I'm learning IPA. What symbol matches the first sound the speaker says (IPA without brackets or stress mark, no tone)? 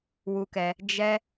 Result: w